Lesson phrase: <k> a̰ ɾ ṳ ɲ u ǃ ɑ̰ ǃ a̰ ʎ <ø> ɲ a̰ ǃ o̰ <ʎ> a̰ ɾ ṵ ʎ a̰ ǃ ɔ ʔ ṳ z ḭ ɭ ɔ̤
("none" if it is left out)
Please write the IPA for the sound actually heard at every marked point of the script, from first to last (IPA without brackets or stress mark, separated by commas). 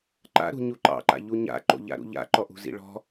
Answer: ǃ, u, ʎ